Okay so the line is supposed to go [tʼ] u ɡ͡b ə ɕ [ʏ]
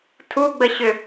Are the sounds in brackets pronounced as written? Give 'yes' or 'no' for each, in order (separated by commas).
no, yes